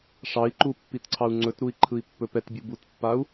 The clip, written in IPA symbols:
ʂɑi̯ǃu pːitǀʰɑu̯ŋ͡ǀɵtɾui̯ ǃʰɯi̯pːɵpɛtbʲu butpːau̯

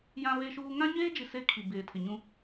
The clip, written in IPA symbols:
jã˦βe˦ʃuː˦ ŋã˦ɲeː˦d͡ʒi˨ se˦kʰi˨ beː˨tʰɪ˨ɲũ˦

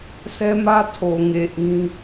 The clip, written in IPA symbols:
sɛ˦mä˦ tʰo˨ŋe˨ ʔĩ˦

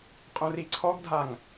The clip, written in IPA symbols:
qʼõriǀʰɔɡdʱaŋ

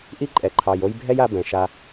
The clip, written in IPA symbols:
ʔi˦ǃʼɛ˨ǃʰɑ˨j o˧jbʱɛ˦ja˧ bɛ̃˨ ʃa˧

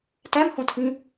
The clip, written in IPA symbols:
tæmhõtʰĩ

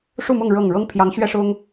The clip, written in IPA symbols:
ʂu˥˨mʊ˥˨ŋ ɻɤ˥˨ŋ ɻɤ˦ŋpʰjɑ˨˦ŋɕɥɛ˦ ʂʊ˦ŋ

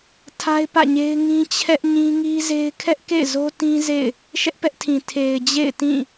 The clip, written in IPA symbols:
tʰa˦ɪ̯pä̰˦˨ɲe˦ɪ̯ ŋĩ˦t͡ɕʰɛ˦ʔɲĩ˦ ŋi˦ze˦ɪ̯ kʰɛ˦ʔkḛ˦˨ɪ̯ zo˦ tĩ˦ zḛ˦˨ɪ̯ | ʃɛ˦ʔpɛ˦ʔtʰĩ˨ tʰe˨ɪ̯ d͡ʑḛ˦˨ɪ̯tĩ˦˨

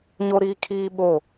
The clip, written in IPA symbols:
ɲo˦ɾiː˦ kʰiː˦ɓo˦˨

